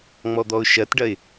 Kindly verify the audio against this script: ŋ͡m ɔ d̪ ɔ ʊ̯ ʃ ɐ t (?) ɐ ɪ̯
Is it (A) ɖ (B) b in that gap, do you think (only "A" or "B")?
A